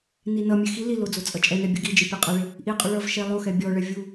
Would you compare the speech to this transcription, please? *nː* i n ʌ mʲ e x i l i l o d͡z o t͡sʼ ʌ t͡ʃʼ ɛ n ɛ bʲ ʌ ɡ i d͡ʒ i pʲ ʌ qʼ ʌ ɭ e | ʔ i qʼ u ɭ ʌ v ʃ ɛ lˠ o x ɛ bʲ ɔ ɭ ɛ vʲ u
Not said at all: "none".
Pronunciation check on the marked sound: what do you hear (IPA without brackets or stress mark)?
n